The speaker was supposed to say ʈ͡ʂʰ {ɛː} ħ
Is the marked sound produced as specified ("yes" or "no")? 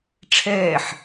yes